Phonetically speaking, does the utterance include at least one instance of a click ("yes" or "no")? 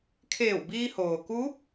no